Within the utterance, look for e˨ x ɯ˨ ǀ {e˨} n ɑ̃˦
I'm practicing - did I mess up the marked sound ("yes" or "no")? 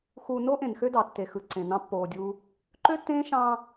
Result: yes